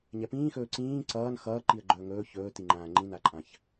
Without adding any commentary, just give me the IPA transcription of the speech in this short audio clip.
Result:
ɲ ɛ p ĩː x ɵː ǀ ĩː ǀ ʌː n x ʌː ǃ i ə̯ ɡ͡ǃ ɵː ŋ ɵː ç ɵː t i ŋ͡ǃ ãː ŋ͡ǃ ĩ n a ǃʼ ã ç

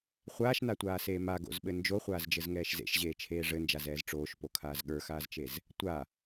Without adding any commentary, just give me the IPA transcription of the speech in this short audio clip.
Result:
χʷ aː ʃ n a tʷ aː s eː m a ɡ o̰ z ɓ ɘ n d͡ʒ o χʷ aː z d͡ʒ ɘ z ŋ ɛː ʃ z ḛ ʃ ʑ eː t͡ʃʰ eː ʐ ɘ n d͡ʒ a z ɛː z ʈ͡ʂ oː ʃ p o kʰ aː z ɠ ə˞ x aː z t͡ʃ e z | tʷ a

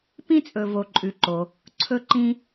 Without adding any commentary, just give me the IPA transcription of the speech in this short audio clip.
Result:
p ĩ˥ t͡sʼ ɵ˩ v o˩ ǃʼ ʉ˩ ǃ o˩ | ǀʰ ɵ˧ ǃ ĩ˧

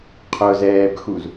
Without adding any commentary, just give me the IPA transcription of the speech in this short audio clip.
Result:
qʰ ʊ z ɛː b x u z

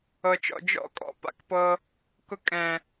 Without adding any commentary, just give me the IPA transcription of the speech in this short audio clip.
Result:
ɤ˨ t͡ʃ ɔ̰˨ d͡ʒ ɔ̰˦ kʼ ɔ̰˨ p a̰˦ k p ɤ˧ | k ʊ˧ kʼ ɛ̃˨

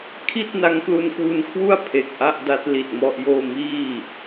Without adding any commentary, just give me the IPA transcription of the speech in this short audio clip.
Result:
kʰ i˥˩ t̚ n a˦˥ ŋ k l u˧ n k w u˧ n kʰ w u˥˩ a̯ pʰ e˨˩ k̚ ʔ a˥˩ ʔ d a˦˥ t̚ l i˨˩ t̚ m ɔ˥˩ ʔ j oː˥˩ m iː˥˩

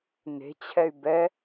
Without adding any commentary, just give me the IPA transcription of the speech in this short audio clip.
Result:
n e̤ t͡ɕʰ ɛ y̯ b ɛ

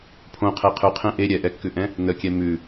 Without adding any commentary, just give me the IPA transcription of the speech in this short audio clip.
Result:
pʰ õ qʰ e qʰ ʉ qʰ ẽ ʔ e ɾʲ ɛ ʔ ɛ kː ʉ ʔ ɛ̃ | n ə kʲ ɛ m ʉ

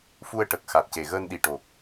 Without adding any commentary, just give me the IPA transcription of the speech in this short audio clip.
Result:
f u˧ ə̯ ʈ ə˨˩ k̚ x a˨˩ t̚ c e˨˩ ɣ əː˧ n ɗ i˨˩ ʈ o˨˩ k̚

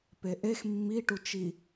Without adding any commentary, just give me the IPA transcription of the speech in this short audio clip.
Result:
p e ʔ e x mː i ʈ u t͡ʃ i

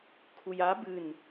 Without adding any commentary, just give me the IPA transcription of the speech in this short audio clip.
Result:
kʰ u j a b ɨ n

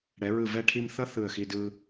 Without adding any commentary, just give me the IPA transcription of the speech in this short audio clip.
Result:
ɽ ɛ˩˧ ɹ ɯ˧˩ v ɛ˥˧ ʈʰ i˥˧ m θ ʌ˥˧ θ ɯ˧˩ ə̯ x i˧ d ɯ˧

